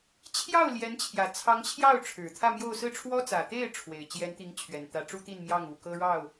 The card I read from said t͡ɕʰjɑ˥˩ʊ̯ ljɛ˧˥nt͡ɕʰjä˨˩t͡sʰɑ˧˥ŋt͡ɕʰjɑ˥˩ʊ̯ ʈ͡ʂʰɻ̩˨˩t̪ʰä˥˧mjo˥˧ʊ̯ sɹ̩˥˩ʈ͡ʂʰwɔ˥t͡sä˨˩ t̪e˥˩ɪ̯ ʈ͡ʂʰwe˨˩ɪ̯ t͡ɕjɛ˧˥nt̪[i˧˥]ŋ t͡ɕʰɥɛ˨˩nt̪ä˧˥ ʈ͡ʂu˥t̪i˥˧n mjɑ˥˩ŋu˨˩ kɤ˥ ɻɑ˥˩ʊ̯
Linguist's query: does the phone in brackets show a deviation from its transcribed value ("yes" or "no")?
no